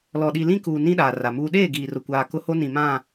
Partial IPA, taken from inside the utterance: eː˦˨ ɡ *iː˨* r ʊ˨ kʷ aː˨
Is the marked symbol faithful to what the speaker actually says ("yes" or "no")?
yes